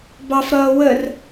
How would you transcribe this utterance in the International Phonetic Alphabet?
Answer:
b ɑ f ɾ ʌː w ə r

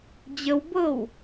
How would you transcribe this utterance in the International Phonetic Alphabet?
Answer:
d͡ʑ ə w b ɤ w

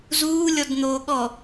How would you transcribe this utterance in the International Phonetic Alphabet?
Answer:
z uː lʲ ɔ d n̪ oː ɠ ɔ

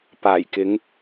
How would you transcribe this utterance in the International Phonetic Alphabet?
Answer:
p aː˨˩ j k ɪ˨˧ ŋ

